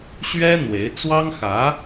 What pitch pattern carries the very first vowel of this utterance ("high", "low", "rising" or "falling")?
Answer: high